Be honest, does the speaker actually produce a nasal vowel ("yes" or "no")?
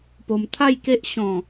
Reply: yes